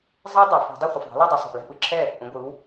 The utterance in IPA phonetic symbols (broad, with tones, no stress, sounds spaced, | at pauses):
zˤ ɛ˦˥ dˤ ɛ˩ f o̤˧˩˧ dˤ o˥˨ χʷ ɯ˩ f ðˤ a̤˩˥ l a˥˨ dˤ ɯ˩˧ sˤ o̤˩ ʔ l ɛ̤˥˨ p ɯ˩ ǁʰ ɛ˥˨ | ʔ ũ˩˧ ɡʷ ɯ˩˧ w